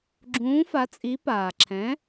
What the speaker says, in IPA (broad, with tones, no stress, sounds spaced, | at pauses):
ɡ͡ǁ ũː˩˥ f a˩˥ t͡sʼ i˩˥ p aː˩ ǁʰ ɛ̃˩˥